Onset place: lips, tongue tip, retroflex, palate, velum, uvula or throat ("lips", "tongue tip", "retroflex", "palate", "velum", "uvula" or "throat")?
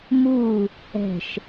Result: lips